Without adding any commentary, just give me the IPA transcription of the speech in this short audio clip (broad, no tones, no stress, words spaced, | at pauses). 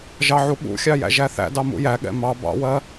ʒɑʕuɠṵxʲɑ jæ̰ʒæθæ̰dɑ mṵjæɠɛ̰ mɑ bɑ̰wɜ